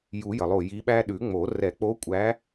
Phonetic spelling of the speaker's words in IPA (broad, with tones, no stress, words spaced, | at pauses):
ju˨˩˦jə˩lˠo˧˩ ji˧˥ɓæ˥ ɗʉ˨˩˦ŋ͡mo˨˩˦ rɛ˨˩˦k͡po˧˥kʷʼæ˧˥